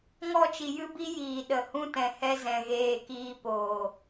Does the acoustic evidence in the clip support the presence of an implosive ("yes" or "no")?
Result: yes